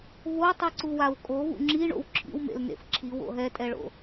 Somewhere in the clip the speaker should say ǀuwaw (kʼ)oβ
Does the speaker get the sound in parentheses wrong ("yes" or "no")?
no